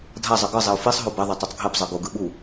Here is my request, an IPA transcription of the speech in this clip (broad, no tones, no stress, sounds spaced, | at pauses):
dʱ a zˤ ɯ ɡ ɯ zˤ i ʊ̯ f i sˤ ɦ o b ɛ ðˤ e tˤ u tˤ ɡʱ e b zˤ ɯ ɡ o ɡ ɯ ɓ u